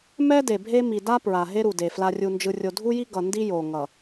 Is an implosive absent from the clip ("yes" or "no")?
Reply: yes